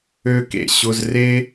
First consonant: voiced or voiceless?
voiceless